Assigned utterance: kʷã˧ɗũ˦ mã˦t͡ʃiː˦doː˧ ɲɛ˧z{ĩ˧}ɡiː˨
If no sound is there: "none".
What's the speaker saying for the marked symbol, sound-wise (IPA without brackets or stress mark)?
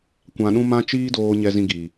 ĩ˧